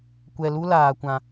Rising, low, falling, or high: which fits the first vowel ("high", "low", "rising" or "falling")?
low